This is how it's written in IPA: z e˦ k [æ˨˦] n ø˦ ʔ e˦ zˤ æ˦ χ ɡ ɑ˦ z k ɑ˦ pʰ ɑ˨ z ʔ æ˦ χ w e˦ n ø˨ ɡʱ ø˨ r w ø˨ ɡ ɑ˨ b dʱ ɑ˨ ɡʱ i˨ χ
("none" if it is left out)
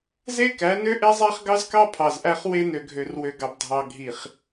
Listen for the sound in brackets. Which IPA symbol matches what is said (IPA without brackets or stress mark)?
æ˨˦